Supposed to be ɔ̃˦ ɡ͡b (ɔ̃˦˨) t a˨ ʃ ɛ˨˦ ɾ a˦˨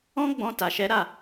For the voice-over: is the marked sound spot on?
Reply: no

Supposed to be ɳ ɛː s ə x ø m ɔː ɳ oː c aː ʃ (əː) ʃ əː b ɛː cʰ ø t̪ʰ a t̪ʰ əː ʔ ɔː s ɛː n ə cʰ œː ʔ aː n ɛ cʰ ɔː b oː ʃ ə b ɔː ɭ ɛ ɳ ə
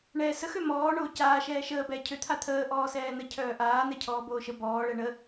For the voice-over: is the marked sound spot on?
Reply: no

